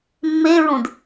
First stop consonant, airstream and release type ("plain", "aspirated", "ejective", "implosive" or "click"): plain